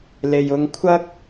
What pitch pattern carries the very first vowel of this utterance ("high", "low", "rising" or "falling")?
low